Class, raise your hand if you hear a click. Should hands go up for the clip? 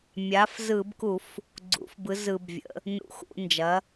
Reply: yes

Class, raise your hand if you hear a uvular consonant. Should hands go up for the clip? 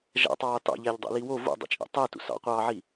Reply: yes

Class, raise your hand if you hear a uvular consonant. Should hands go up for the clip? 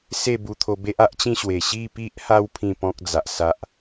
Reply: no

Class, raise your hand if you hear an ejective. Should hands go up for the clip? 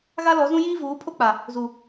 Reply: no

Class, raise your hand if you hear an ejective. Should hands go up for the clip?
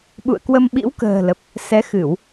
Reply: no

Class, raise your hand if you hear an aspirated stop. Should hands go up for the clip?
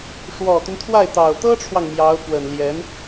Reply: yes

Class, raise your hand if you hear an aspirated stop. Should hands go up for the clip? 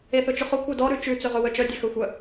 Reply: no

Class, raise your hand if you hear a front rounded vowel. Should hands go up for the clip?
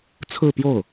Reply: no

